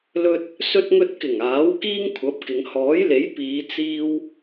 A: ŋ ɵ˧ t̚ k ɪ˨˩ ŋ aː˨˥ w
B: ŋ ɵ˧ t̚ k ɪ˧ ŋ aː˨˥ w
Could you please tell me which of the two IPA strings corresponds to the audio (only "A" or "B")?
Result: A